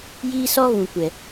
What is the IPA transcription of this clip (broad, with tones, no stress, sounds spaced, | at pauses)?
j iː˦ s ɔ˦ ɣ ũ˨ kʷ ɛ˨